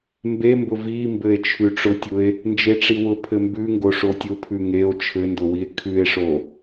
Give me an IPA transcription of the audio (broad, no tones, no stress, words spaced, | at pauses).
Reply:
mbembʊ vimbɘe̯ t͡ʃʰʉʈ͡ʂʊtʲʊe̯ | nd͡ʒeʈ͡ʂiwʊ pʰɘmbʉŋɡo ʂotʲʊ pʰʉŋeo̯ t͡ʃʰɘndʊwie̯ kʰʉe̯ʂo